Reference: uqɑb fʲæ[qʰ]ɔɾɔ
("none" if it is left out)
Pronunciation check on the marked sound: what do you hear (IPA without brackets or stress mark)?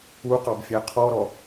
qʰ